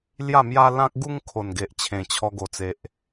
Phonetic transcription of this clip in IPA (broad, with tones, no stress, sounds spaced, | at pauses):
l j a˥˧ m j a˦ l ã˦ k̚ ɡ u˦ ŋ kʰ o˨˩ n ɡ e˨ ʔ t͡ɕʰ ẽ˨˩ t͡ɕʰ ɔ˧ ɡ o˨˩ t͡s e˨ ʔ